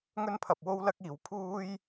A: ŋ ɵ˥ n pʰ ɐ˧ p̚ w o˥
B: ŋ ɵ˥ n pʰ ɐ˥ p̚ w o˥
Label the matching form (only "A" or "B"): A